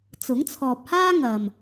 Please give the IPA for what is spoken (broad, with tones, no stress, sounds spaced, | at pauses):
t͡s ʊ˨˥ ŋ t͡sʰ ɔː˨ p̚ h aː˥ ŋ ɐ˨ m